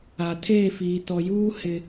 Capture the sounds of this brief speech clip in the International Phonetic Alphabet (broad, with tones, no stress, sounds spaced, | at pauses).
a˨ tʰ eː˦˨ f iː˨ t ɔ˨ j uː˦ h ɪ˨